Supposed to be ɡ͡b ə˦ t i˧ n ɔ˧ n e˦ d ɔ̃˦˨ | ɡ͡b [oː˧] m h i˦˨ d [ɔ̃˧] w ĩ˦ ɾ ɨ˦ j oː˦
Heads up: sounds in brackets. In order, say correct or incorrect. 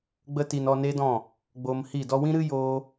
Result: correct, incorrect: ɔ˧

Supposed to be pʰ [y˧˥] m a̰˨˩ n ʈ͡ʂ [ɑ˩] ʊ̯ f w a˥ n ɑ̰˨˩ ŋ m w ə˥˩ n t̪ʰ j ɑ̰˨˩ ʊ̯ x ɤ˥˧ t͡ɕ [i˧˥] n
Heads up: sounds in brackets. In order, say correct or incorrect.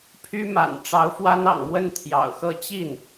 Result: incorrect: y˥, incorrect: ɑ˧˥, incorrect: i˥˩

